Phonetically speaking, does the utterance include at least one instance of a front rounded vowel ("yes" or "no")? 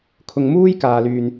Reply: yes